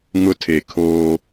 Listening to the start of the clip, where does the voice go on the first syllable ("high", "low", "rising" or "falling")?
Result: high